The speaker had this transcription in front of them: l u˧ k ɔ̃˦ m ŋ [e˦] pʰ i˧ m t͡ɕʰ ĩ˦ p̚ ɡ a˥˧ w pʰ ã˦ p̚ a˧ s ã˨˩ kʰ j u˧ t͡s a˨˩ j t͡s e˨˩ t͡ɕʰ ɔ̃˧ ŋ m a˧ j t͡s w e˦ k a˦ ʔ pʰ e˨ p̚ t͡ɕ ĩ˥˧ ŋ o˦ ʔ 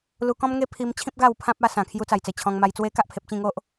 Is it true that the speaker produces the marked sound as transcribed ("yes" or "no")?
yes